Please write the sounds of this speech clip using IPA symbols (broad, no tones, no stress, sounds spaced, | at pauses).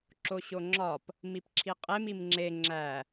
ǁ o ɕ o ŋ͡ǁ ɒ p | m i p ǁʰ i qʼ e m i m ŋ͡ǁ e ŋ͡ǁ æ